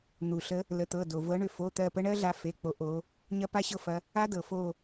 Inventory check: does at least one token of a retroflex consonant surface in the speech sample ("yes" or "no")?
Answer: yes